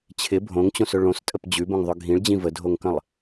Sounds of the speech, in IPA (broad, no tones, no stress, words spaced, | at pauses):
t͡ɕʰɪ bʱõŋt͡ɕõsɵ ɭõstʼəp d͡ʑʉbõŋðˤɵ ɡʱĩɭd͡ʑĩ vədʱoŋkə̃lˠ